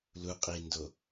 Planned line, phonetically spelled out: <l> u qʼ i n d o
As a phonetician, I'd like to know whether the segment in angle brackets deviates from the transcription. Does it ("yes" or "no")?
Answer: no